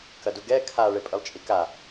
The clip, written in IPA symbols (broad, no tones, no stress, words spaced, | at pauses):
kɐduɡɛ kʰa ɭepʼɨlˠt͡ʃʼika